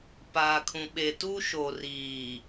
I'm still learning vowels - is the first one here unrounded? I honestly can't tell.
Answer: yes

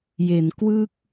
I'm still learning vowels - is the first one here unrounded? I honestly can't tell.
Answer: yes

